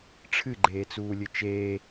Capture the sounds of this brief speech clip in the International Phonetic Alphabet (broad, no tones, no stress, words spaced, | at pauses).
ʈ͡ʂʰɨɡ͡ǃeːt͡suːlʲɨ t͡ʃeː